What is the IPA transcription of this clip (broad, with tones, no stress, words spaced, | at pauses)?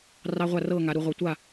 rɑ˦˥ʁʷa˥˧rɤː˥˧ ŋa˦˥ɾu˦˥ʁʷɤ˦˥ tʷa˥˧